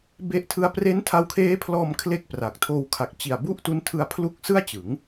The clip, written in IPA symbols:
b e˦˥ ʔ tʰ ɯ˦˥ a̯ p r e˦˥ n tʰ a˧ w kʰ eː˦˥ pʰ l ɔː˧ m kʰ l e˥˩ k̚ p r a˨˩ k̚ tʰ oː˧ w kʰ a˨˩ k̚ t͡ɕ i˨˩ a̯ b u˥˩ ʔ t u˦˥ n tʰ ɯ˧ a̯ pʰ l u˥˩ k̚ s ɯ˥˩ a̯ t͡ɕ ɯ˩˦ ŋ

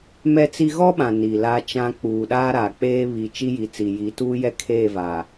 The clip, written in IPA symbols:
m ɛ˦ t͡s i˦ ɣ ɔ˦ ɓ ã˨ n i˨ l a˦ t͡ʃ ã˦ k͡p uː˨ ɗ aː˦ ɾ aː˨ k͡p eː˦ β i˨ t͡ʃ i˦ j i˨ t͡s i˨ j i˨˦ t uː˦ j ɛ˦ kʰ eː˦˨ v a˨

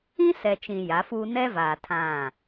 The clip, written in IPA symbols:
ĩ˦ s ɛ˨ t͡ʃ ĩ˨ j a˨˦ f uː˦ n ɛ˦ v aː˨ tʰ ã˦˨

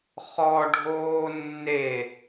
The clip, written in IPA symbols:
χ ɔ ɖʱ oː nː e

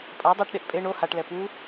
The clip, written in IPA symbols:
pʼ a dˤ ɛ ʈ ɗ e ʔ pʼ e ɳ o h a ʈ l ɛ p u

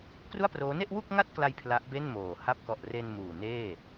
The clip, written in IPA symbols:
k r u˥˩ a̯ p r oː˦˥ n e˥˩ ʔ w u˥˩ k̚ ŋ a˥˩ t̚ k l a˧ j pʰ l a˦˥ ʔ b e˥˩ n m oː˨˩ h a˦˥ p̚ k ɔ˨˩ ʔ r e˧ n m uː˨˩ n eː˥˩

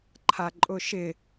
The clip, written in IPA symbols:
ǃʰ a ǃʼ ʊ ʃ ɪ

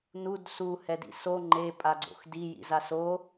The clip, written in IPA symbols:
n u d s u h ɛ d ḭ s o ŋ͡ǃ e pʼ a ɡ͡ǀ o̰ x d i j ḭ z a s o

